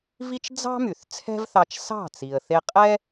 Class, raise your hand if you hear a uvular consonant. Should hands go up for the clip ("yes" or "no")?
yes